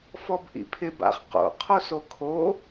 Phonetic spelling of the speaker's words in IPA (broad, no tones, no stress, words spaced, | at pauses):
fɔbʔḭpʰɪb a̰χ qo̰ qʰosokʰo